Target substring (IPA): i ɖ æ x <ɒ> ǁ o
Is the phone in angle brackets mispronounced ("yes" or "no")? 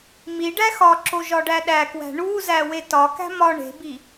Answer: no